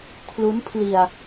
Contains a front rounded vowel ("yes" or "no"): no